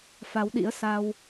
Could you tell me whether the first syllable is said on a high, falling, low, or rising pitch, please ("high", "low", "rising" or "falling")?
rising